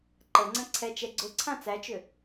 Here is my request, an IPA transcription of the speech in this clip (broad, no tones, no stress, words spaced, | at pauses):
ǃəŋ͡ǀə̃ ǀʰɛt͡ʃɛ ɡ͡ǀʊ ǀʰãt͡sæt͡ʃʏ